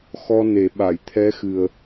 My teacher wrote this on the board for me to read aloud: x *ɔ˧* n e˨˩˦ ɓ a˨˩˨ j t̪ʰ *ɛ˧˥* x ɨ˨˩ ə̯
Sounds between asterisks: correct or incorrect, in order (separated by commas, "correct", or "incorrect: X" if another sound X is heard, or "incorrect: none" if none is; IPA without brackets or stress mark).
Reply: correct, correct